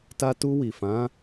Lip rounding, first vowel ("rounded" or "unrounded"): unrounded